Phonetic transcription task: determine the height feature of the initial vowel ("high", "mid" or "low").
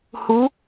high